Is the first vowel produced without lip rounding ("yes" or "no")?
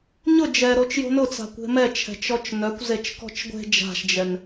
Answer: no